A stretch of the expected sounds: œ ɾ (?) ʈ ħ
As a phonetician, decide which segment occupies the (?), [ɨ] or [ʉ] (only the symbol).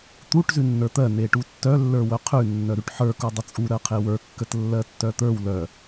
ʉ